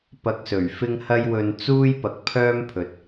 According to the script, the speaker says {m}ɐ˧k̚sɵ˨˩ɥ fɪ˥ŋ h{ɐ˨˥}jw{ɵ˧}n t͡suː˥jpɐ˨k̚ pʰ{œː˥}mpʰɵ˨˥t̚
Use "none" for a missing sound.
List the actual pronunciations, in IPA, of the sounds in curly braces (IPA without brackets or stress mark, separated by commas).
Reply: p, ɐ˥, ɵ˧, œː˥